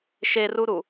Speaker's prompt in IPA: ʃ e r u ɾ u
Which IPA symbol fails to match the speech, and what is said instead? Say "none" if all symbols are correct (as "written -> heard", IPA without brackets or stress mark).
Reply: none